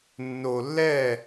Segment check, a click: absent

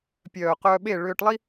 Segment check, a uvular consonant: present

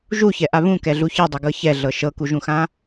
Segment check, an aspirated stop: absent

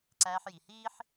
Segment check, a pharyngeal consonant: present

